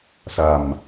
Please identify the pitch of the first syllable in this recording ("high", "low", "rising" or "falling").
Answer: low